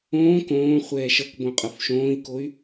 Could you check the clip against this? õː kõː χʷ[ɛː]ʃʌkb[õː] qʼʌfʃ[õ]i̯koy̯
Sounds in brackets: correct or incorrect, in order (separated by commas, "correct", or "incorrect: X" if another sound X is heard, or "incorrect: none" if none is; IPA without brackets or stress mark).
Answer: correct, incorrect: õ, incorrect: õː